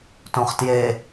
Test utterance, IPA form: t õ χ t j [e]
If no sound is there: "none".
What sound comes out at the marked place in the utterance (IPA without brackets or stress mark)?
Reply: e